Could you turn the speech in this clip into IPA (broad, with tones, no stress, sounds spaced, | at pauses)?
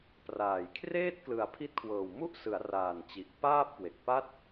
p r aː˨˩ j kʰ r eː˥˩ t̚ k l ɯ˨˩ a̯ pʰ i˦˥ t̚ kʰ w ɤː˨˩ w m u˥˩ ʔ s ɯ˩˦ a̯ r aː˨˩ n t͡ɕ i˨˩ ʔ p aː˥˩ p̚ k w e˨˩ k̚ p a˥˩ t̚